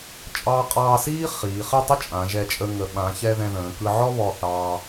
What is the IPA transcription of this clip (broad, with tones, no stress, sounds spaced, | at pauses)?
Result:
t͡ʃʼ ɑː˧ qʼ ɑː˧ s iː˥ χ iː˩˧ χ ɘ˥˧ tˤ ə˥ t͡ʃʼ ã˩˧ ʒ ɛ˧˩ t͡ʃʼ ə˧ ŋ ə˩˧ ɓ ã˩˧ ç ɛ˧ ð ɛ̃˧ ð ə̃ː˩˧ k ɯ˧ ʕ ɔ˥ β ɔ˧˩ θ ɑː˧